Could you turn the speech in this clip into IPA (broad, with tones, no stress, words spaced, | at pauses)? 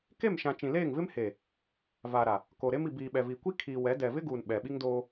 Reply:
ke˦˨mʃã˨ t͡ʃĩ˨leː˦˨ŋvɪ˦mheː˨ | va˨ɾa˨ | ko˨ɾe˦m i˨biː˨ɓɛ˨vi˨ kʷi˦ kʰiː˨wɛ˨˦dɛ˨ vɪ˦ɡuː˨n ɓɛ˨ɓi˦ŋdoː˦